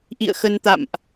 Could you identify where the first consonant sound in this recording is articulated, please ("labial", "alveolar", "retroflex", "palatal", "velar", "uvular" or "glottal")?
glottal